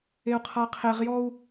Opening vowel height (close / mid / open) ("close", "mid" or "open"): mid